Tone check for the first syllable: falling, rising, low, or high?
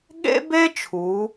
high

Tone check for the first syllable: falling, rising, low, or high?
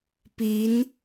rising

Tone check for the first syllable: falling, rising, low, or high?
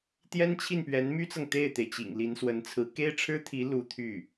high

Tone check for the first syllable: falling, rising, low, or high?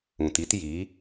low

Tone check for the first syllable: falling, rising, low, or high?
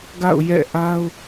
falling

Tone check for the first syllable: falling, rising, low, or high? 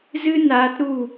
high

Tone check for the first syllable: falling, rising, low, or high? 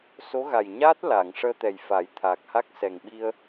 rising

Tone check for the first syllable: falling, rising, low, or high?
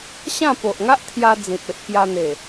falling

